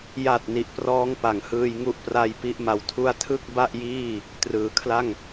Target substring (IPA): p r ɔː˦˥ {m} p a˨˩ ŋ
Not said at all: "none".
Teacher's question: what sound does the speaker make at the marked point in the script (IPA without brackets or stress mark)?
ŋ